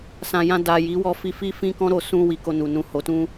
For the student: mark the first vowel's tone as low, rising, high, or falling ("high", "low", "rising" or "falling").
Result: low